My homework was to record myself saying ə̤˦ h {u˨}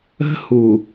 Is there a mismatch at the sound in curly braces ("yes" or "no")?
no